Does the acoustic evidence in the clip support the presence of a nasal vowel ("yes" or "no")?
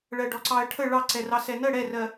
no